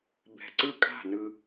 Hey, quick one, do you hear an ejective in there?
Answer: yes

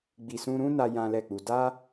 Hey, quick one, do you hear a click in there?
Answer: no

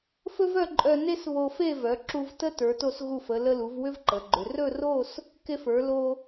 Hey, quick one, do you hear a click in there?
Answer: yes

